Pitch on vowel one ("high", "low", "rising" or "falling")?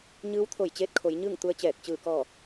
rising